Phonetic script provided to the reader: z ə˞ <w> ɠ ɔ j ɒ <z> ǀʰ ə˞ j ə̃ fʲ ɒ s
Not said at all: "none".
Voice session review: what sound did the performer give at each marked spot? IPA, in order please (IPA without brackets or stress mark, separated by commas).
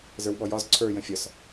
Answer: w, z